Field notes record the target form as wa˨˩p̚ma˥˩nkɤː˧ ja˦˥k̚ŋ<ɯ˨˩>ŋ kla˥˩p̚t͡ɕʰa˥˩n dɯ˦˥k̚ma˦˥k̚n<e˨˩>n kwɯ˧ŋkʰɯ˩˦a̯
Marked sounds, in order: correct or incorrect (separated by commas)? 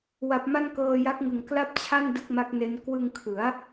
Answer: correct, incorrect